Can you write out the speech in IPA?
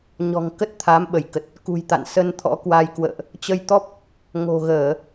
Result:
ɲ ɔ̤˨˩ ŋ k ə˦˥ t̚ t̪ʰ a˨˦ m ɓ ə˧˩ j k ə˨˩ t̚ | k ṳ˨˩ j t̪ a̰˧˨ n s ə˧ n t̪ʰ ɔ̰˧˥ k w a˧ j k w ə̰ː˧˨ ʔ | t͡ɕ ə˧ j t̪ ɔ˦˥ p̚ | ŋ o̤˨˩ ɣ əː˧˩˨

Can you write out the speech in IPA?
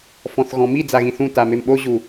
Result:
f ɔ̃ θ ɣ ɔ̃ m i d͡z a ɣ ĩ θ ũ t a m e m ɓ o ʑ u

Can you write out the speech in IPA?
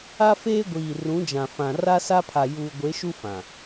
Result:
a˦ f eː˦ ɡʷ iː˨ r ũ˨˦ d͡ʒ ã˨ f ã˨ r a˦ s a˦ pʰ a˨ j uː˨ ɡʷ e˨˦ ʃ u˦ f ã˨

